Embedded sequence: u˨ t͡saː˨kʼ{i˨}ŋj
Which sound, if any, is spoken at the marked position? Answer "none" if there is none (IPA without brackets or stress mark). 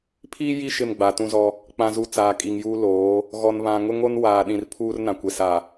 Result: i˨